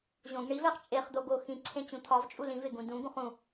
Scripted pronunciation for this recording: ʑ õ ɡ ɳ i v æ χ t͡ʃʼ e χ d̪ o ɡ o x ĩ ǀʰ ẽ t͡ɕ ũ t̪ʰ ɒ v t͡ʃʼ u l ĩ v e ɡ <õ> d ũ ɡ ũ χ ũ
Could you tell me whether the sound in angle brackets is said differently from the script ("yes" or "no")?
yes